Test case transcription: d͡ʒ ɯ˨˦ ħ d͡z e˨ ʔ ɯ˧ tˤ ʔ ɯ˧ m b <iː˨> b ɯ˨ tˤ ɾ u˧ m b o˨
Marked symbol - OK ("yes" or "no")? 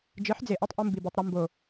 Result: no